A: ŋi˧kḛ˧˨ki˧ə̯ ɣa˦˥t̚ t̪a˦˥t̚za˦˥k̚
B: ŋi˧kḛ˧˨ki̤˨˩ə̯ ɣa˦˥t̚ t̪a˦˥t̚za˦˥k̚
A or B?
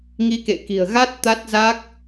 B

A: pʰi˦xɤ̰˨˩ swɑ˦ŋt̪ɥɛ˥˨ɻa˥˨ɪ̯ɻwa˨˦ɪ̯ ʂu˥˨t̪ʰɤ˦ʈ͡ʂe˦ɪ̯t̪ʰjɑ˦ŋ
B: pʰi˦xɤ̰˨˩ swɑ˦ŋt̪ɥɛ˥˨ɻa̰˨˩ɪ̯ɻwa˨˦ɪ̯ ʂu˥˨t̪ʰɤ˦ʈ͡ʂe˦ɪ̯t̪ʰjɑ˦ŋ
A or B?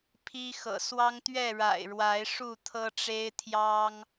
B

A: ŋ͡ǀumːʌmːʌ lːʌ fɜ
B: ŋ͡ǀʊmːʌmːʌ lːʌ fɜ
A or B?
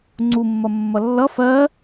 A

